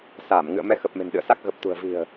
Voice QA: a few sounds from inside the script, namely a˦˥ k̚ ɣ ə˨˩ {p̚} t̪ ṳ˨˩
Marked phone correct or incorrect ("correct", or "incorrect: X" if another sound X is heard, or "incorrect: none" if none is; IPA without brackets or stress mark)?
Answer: correct